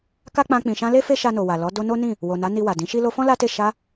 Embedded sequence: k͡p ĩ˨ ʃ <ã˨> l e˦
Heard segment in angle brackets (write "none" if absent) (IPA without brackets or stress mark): ã˧